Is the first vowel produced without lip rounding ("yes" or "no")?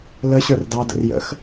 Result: yes